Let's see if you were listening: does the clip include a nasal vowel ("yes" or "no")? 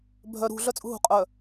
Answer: no